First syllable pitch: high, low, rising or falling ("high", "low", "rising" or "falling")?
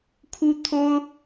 high